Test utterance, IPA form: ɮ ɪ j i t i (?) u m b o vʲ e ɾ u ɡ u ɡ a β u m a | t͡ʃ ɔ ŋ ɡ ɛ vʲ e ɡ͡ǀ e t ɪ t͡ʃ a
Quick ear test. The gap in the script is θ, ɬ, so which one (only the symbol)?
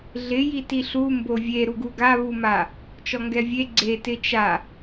ɬ